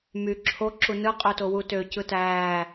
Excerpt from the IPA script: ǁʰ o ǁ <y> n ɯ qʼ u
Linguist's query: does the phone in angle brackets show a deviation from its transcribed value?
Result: yes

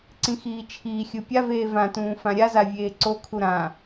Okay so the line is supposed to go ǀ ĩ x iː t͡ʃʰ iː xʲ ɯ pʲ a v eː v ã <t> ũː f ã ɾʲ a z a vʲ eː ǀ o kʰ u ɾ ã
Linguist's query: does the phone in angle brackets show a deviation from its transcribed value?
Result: no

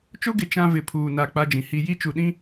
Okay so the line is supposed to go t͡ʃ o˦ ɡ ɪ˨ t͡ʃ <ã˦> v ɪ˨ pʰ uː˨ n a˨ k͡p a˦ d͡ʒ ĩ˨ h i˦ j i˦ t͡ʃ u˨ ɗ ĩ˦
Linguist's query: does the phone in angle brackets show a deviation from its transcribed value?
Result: no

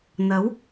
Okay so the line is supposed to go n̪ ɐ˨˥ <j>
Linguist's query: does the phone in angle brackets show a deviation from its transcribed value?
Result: yes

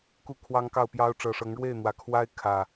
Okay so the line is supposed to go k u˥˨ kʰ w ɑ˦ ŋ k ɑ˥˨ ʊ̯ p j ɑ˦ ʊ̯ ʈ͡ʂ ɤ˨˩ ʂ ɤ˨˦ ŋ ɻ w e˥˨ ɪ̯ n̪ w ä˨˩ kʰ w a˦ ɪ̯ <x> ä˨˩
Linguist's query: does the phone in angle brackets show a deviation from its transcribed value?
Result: yes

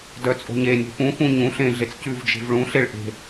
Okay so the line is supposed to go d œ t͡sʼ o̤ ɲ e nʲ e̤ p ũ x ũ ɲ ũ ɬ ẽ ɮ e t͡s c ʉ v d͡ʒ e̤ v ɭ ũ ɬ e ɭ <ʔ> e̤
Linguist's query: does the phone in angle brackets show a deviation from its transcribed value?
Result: no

